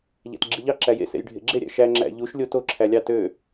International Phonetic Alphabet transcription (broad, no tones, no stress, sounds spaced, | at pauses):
ʎ æ̰ t ɡ͡ǁ i ʎ ɑ ǁ æ j ḛ s ḛ j ɖʱ ḛ ɡ͡ǁ e ɾʲ æ̰ ʃ æ ŋ͡ǁ æ̰ ʎ u ʃ lʲ o t o ǁʰ æ lʲ ɑ t ø